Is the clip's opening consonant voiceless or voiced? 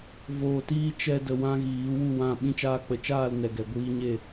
voiced